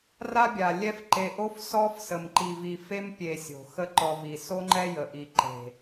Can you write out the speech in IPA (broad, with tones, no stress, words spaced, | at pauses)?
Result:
ra˦bʲa˨ lʲɛ˦fǃe˧ ʔo˦fsɔ˦fsə˨m ǃi˨vi˨fe˦mpʲe˨ sʲo̤˨ xə˦ǃɔ˧vi˨ so˦ŋ͡ǃɛ˦ jə˨ʔi˨ ǃe̤˨